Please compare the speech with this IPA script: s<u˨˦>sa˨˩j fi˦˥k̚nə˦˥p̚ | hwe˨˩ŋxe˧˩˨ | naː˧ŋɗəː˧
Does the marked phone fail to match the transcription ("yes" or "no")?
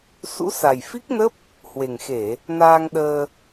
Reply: yes